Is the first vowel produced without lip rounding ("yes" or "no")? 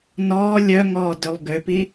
no